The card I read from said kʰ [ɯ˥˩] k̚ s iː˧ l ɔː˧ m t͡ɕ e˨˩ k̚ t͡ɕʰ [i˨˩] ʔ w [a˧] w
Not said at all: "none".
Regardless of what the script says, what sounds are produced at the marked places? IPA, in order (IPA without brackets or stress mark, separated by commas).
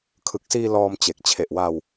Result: ɯ˨˩, e˨˩, a˧